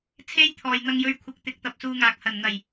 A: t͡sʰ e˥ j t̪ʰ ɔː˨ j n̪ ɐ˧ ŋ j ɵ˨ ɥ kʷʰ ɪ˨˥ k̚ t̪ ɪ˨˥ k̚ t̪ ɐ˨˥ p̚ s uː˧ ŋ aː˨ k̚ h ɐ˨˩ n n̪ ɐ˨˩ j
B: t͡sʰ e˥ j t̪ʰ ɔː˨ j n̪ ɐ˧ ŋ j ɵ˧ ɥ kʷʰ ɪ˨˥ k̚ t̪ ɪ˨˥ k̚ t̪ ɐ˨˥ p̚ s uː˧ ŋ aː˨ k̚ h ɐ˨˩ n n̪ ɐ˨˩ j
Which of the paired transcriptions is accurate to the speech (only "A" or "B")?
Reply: B